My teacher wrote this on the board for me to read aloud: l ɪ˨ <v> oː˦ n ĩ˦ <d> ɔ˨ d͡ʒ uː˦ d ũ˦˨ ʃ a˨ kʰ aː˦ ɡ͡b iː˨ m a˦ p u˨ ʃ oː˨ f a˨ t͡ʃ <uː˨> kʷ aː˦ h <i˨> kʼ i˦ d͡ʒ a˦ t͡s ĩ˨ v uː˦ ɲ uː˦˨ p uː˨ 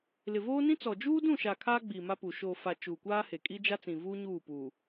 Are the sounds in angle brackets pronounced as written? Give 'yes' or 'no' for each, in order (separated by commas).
yes, no, yes, no